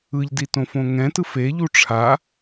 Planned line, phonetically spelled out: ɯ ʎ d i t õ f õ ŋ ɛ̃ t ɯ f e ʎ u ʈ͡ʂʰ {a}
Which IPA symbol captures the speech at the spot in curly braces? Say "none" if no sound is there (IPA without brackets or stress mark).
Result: a